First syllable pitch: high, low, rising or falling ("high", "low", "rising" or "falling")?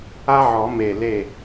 high